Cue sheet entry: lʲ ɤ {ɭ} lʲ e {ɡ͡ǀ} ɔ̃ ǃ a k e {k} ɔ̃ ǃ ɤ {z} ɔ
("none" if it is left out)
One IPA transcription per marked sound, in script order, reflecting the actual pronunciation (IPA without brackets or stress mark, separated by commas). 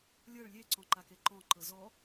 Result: ɭ, ǀ, ǃ, z